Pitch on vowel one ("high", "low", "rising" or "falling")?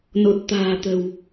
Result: low